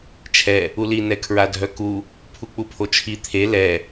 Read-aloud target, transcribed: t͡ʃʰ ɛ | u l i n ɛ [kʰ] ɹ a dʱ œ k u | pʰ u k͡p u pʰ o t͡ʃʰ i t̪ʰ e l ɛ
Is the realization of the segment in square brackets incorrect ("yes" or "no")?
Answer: no